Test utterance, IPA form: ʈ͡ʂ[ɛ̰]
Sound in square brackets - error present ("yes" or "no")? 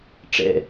no